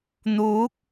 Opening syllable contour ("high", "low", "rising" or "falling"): rising